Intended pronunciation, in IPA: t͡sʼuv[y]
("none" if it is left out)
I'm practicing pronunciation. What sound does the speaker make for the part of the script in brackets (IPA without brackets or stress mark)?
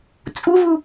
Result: u